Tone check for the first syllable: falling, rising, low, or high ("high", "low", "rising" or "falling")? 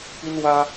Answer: high